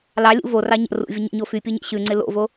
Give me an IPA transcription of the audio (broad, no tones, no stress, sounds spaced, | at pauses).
l ɑ lʲ ṵ v o r ɑ ɲ ə̰ r ṵ vʲ ə ɲ ḛ ɲ o f y pʲ u ɲ ḛ ɕ ʉ ŋ͡ǀ ɪ l o̰ v o